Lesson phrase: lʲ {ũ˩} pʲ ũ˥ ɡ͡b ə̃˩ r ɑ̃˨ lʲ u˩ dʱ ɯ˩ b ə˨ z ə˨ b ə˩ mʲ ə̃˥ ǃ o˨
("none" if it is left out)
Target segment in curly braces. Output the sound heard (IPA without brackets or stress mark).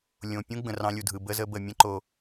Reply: õ˩